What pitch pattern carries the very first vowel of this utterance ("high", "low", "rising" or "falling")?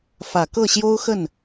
low